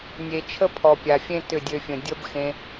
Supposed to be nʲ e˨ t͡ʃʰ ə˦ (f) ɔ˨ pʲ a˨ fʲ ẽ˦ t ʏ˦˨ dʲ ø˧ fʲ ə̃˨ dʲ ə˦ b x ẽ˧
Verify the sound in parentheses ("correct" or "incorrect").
incorrect